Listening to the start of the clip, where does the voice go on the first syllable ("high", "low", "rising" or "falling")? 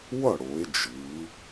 falling